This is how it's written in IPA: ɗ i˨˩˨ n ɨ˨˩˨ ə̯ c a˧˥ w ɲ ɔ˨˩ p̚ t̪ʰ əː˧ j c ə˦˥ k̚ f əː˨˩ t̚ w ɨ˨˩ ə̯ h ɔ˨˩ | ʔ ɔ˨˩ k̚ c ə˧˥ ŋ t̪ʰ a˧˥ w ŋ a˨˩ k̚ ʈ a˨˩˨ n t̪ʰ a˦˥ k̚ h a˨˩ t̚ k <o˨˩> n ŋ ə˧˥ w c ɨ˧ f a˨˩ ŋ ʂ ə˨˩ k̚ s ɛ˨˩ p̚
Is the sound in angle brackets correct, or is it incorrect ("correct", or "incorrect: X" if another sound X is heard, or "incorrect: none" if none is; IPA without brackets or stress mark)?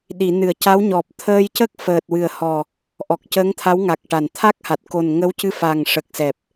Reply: correct